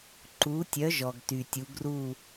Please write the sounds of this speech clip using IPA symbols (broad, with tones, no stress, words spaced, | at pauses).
ǃu˨˥tʲœ˨˥ ʒɔ˩ɡty˩tʲu˩˧ ɡru˧˩